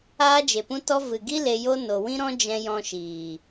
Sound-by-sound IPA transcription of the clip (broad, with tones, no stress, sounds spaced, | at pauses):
aː˦ d͡ʒ e˨ p ũ˦ t ɔ˦ v ɨ˨ ɡ i˦ l e˧ j o˦ n o˨ w ĩ˦ ɾ ɔ̃˦ d͡ʒ ɛ̃˧ j ɔ̃˧ ʃ iː˨